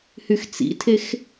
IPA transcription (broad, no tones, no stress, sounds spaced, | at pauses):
h y x t͡s ḭ tʰ e x